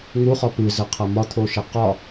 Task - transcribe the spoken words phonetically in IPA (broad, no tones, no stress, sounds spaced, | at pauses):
ŋ u χ ɒ p ɨ z ə qʰ ɐ m ɒ t̪ʰ o ʃ e q ɒ